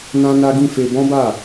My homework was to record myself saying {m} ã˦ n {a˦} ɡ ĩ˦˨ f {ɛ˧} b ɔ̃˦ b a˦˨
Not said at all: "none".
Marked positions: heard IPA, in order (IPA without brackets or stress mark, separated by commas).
n, a˦, e˧